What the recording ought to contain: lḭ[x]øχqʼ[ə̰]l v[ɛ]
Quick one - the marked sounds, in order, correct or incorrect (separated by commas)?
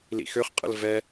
correct, correct, correct